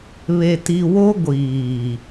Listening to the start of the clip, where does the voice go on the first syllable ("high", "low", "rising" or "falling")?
low